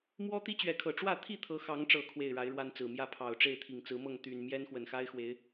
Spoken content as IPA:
m w ɔ˦ t̪ i˦ t͡ɕ ɥ ɛ˨˦ kʰ ɤ˨˩ ʈ͡ʂ w ä˥˨ t̪ʰ i˥˨ t̪ʰ ɤ˨˦ x ɑ˨˦ ŋ ʈ͡ʂ ɤ˨˩ kʰ w e˥˨ ɪ̯ ɻ a˨˦ ɪ̯ ɻ w a˦ n t͡s ɹ̩˨˩ m j ä˥˨ pʰ ɑ˨˩ ʊ̯ ʈ͡ʂ e˥˨ ɪ̯ t̪ʰ i˨˩ ŋ t͡s ɹ̩˨˦ m ɤ˥˨ ŋ t̪ y˨˩ n m j ɛ˦ n x w ə˨˩ n x a˦ ɪ̯ x w e˨˦ ɪ̯

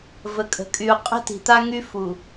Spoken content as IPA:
v ə˨ kʼ ə̤˨ kʼ y˨ u̯ qʼ ə̤˦ t i̤˨ t̪ a˦ ŋ y˦ f u˨

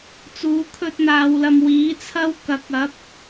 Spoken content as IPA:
t͡s uː˨˧ kʰ ɵ˧ t̚ n̪ aː˨ w l ɐ˨ m w iː˨˥ t͡sʰ ɐ˥ w k ɐ˨˥ k̚ ɐ˨˥ p̚

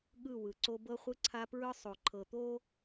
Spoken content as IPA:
ɠ ɯ˦˨ w ɯ˨ ǀ o˦ b ɤ˦ χʷ ɯ˦ ǀʰ a˦ p ɹ ɯ˦ sˤ o˨ ǃʰ ɤ˨ t̪ o˦

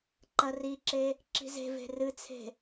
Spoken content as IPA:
ǃ ɐ r i ǁ e | ǁ i̤ z e̤ v e̤ r ɨ t͡sʰ e̤

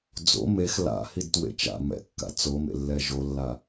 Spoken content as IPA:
d͡z o̰ m e x l a̰ h i d t w ḛ t͡ʃ a̰ m ɛ̰ kː a̰ t͡s o m ḛ lː ɛ ʒ o lː a

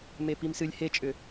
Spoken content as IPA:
m e p i m s ɨ lʲ h e t͡ʃʼ ʏ

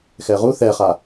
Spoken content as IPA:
x ɛ ʁ u θ ɛ χ a

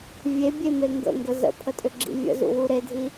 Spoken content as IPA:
vʲ e bʲ e m e ŋ ɡ ə̰ ŋ ɡ ə z ə̰ pʰ ə tʼ ʏ ɡ͡ǁ ḭ vʲ ə̰ z ṵ w u ɾ e dʱ i

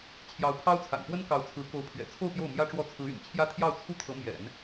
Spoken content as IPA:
t͡ɕʰ j ɑ˧˥ ʊ̯ pʰ ɑ˥ ʊ̯ t͡sʰ a̰˨˩ n p w ə˥ n k ɑ˧˥ ʊ̯ t͡sʰ ɹ̩˧˥ k o˧˥ ʊ̯ pʰ ɥ ɛ̰˨˩ t͡sʰ o˥˧ ʊ̯ p j o˥˩ ʊ̯ m j ä˥ ʈ͡ʂ w ɔ˥˩ t͡sʰ ɹ̩˧˥ y̰˨˩ n t͡ɕʰ j ä˥ t̪ʰ j ɑ˥˩ ʊ̯ t͡sʰ u˥ t̪ʰ ɤ˧˥ m j ɛ̰˨˩˦ n

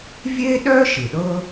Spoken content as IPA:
vʲ e˥ ɗ œ˥ ʃ ɯ˩ ɗ ɤ˥

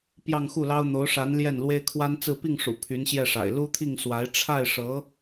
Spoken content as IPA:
p j ɑ˥˧ ŋ x u˥˩ l ɑ˥ ʊ̯ n̪ o˧˥ ʊ̯ ʂ a˧˥ n l j ɛ˥˩ n l w e˥ ɪ̯ kʰ w a˥ n t͡s ɹ̩˥˧ p i˥˩ ŋ ʂ ṵ˨˩ pʰ y˧˥ n ɕ j ɛ˥˩ ʂ a̰˨˩ ɪ̯ l u˥ t̪ʰ i˥˩ ŋ s w a˧˥ ɪ̯ ʈ͡ʂʰ a˥˩ ɪ̯ ʂ ɤ˧˥

